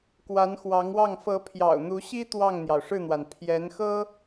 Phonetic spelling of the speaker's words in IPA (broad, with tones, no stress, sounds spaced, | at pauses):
k w a˧˥ n x w ɑ˧˥ ŋ w ɑ˥˩ ŋ f ɤ˧˥ pʰ j ɑ̰˨˩ ʊ̯ n̪ u˧˥ ɕ i˥ t̪ w ɑ˥˩ ŋ n̪ j ɑ˩ ʊ̯ ʂ ɻ̩˥˩ n̪ w a˩ n pʰ j ɛ˧˥ n x ɤ˥